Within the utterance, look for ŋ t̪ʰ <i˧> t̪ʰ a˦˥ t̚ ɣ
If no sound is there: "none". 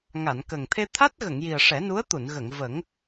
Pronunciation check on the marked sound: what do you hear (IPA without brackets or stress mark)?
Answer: e˧